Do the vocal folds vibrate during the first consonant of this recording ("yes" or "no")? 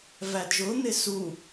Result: yes